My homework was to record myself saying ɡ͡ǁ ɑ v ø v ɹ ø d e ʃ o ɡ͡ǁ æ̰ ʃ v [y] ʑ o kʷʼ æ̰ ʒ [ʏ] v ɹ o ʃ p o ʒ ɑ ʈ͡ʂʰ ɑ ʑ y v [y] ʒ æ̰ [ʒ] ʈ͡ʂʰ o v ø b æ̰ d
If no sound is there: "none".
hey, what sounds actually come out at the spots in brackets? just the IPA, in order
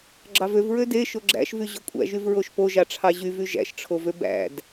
y, y, y, ʃ

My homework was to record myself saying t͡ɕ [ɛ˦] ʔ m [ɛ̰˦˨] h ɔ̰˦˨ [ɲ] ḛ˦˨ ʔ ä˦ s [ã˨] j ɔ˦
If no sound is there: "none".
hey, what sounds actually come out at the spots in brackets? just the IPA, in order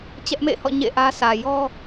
ɛ˦, ḛ˦˨, ɲ, ä˨

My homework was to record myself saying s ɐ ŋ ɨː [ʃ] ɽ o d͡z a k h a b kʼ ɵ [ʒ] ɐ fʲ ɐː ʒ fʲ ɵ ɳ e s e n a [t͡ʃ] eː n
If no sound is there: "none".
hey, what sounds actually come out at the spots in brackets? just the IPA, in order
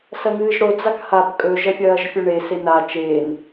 ʒ, ʒ, t͡ʃ

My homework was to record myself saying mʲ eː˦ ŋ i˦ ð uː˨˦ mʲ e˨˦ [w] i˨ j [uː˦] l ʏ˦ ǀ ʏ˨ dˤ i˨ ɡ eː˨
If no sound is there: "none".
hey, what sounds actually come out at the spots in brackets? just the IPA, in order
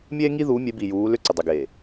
b, uː˨˦

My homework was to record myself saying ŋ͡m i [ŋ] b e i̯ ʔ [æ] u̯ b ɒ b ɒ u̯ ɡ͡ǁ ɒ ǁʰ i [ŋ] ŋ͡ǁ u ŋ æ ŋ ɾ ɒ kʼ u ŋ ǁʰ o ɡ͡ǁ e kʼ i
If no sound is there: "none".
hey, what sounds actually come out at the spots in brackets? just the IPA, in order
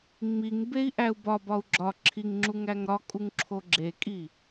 ŋ, æ, ŋ

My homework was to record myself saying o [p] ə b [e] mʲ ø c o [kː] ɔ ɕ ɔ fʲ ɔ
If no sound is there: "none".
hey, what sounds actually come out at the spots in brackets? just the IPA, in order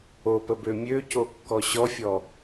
p, ø, kː

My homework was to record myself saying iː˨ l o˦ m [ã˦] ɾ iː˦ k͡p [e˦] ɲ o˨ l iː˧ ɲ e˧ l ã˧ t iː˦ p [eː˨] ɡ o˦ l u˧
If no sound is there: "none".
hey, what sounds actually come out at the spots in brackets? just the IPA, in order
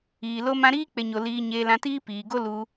ã˦, e˨, iː˨

